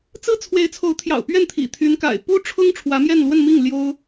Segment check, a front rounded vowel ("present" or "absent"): present